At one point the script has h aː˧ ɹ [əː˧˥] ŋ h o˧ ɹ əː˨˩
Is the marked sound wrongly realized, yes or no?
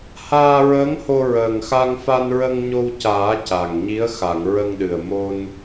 no